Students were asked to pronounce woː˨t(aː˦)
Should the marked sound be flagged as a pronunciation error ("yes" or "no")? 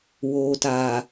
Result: yes